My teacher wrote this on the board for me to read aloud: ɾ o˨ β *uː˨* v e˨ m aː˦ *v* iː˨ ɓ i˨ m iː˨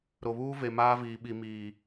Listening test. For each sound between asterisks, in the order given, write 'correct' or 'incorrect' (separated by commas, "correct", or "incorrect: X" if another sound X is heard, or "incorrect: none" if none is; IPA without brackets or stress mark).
incorrect: uː˦, correct